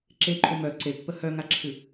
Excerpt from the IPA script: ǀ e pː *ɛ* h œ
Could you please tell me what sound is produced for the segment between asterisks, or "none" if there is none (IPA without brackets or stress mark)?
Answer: ə